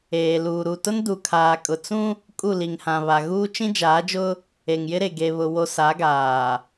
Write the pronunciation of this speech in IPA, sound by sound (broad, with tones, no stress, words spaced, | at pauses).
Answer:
eː˨luː˨ ɾu˨ tʊ˦ndu˨kʰaː˨kʼʊ˨ t͡sũ˦ | kʼu˦˨li˨ŋhã˨βa˨ ɣuː˦t͡ʃĩ˦d͡ʒaː˨˦d͡ʒʊ˦ | e˨ŋjɪ˦ɾe˨ ɡe˨βʊ˨ wo˦ sa˨˦ɡaː˨